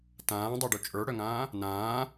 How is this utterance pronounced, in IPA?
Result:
t ãː dˤ a ɖ u t͡ʃʼ ə˞ ɽ œ ŋ ãː | n ãː

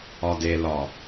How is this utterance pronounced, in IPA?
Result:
ɒ d e l ɒ

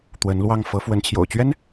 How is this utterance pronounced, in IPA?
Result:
t̪ w ə˧˥ n l w ɑ˥˩ ŋ f ɤ˧˥ f w ə˧˥ n t͡ɕʰ j o̰˨˩ ʊ̯ t͡ɕ ɥ ɛ˥ n

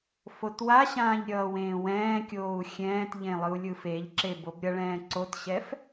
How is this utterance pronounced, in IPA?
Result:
f o t w a ɕ ãː ʎ ɾʲ ʌː w ẽː w ɛ̃ː kʲ oː u̯ xʲ ɛ̃ː t ʎ ẽ lˠ ɯ u̯ lʲ ɯ f e ʎ ǁ e b o b ɾʲ ʌ ɭ ɛ̃ː ǀ o t ɕ ɛ f

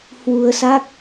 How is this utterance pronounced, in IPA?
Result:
h w u˧ ə̯ s a˦˥ k̚

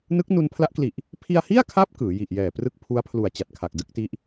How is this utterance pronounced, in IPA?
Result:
n ɯ˦˥ k̚ n u˧ n pʰ l a˦˥ ʔ k l i˨˩ ʔ | pʰ i˧ a̯ h i˥˩ a̯ kʰ a˦˥ p̚ k ɯː˩˦ j i˨˩ ʔ j ɛː˨˩ p r ɯ˥˩ k̚ pʰ u˦˥ a̯ pʰ l u˨˩ a̯ t͡ɕ a˨˩ t̚ kʰ a˨˩ k̚ d ɯ˥˩ k̚ t i˦˥ ʔ

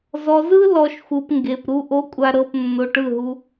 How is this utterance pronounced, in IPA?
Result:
z ɔ˨ z ɯ˦ l ɔ˧ ʃ xʷ ɯ˨ p ŋ ɡ e˨ p ɾ u˨ ʔ o˨˦ kʷʼ a˨ ɾ ɤ˨ p nː o˨ ʈ ɯ˦˨ ɦ u˧

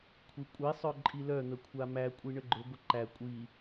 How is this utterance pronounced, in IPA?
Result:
kʷʰ i kʷʼ i sˤ œ ǃʼ i l œ n̪ ə kʷʰ a m æ kʷʼ i ɳ ə ɡ͡ǃ ʊ ɡʷ ə ǃ æ kʷʼ i

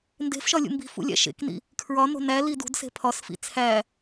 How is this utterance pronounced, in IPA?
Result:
n d e̤ f ʃ ɒ lʲ ṵ m b i̤ f ṵ lʲ æ̰ ʃ ḛ k n ḭ | kʰ ɹ ɒ n o̤ n æ l i d ṳ d s e̤ pʰ ɒ s f ḭ t͡sʰ æ

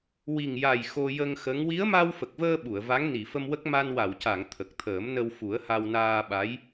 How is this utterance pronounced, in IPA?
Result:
w i˨˩ ŋ j a˨˩ j x o˧ j ə˧ ŋ x ə˧˥ ŋ w i˧˥ ə̯ m a˧ w f ə˨˩ k̚ v əː˧ ɓ u˨˩˨ ə̯ v a˧˥ ŋ n i˨˩˨ f ə˧ m w ə˦˥ k̚ m a˧ n w a˨˩˨ w c a˨˩˨ ŋ t̪ʰ ə˨˩ k̚ t̪ʰ əː˨˩˦ m n ə˧ w f u˨˩˦ ə̯ h a˧ w n aː˧ ɓ a˧˥ j

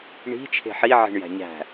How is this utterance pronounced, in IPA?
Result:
ɳ i̤ t͡ʃʰ e̤ ħ i ʕ i̤ ɳ j æ̤ ɲ æ̤

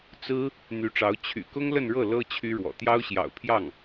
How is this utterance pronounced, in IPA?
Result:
t͡s ɹ̩˥ | n̪ y˧˥ ʈ͡ʂ ɑ˧˥ ʊ̯ t͡ɕʰ y̰˨˩ k ʊ˥ ŋ l ə˥˧ n ɻ ɤ˥˩ l ɤ˥ t͡ɕʰ y˥ ɻ w ɔ̰˨˩ t̪ j ɑ˥ ʊ̯ ɕ j ɑ̰˨˩ ʊ̯ pʰ j ɑ˥˩ ŋ

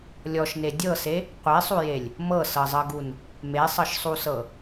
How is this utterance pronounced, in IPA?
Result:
lʲ ɔ ʃ n e dʲ ɤ s e | qʷ e sˤ u j e lʲ | m ɤ s ɤ zˤ ɤ ɡ u n | m e sˤ ɤ ʃ sˤ u s ɤ

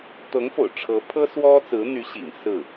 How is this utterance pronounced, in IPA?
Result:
t̪ ɤ˧˥ ŋ f o̰˨˩ ʊ̯ ʈ͡ʂʰ ɤ˧˥ pʰ ɤ˥ s w ɔ˥ t͡s ɹ̩˧˥ n̪ y˧˥ ɕ ḭ˨˩ ŋ s ɹ̩˥˩

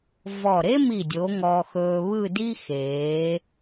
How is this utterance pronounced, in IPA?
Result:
v ɔ˧˩ ɾ e˥ m i˧˩ dʲ o˩˧ ŋ ɔ˧ x ɵː˧ β ɯ˥˧ d i˥ x eː˩˧

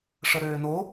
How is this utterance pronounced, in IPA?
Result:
ʂ ə ɾ øː n o

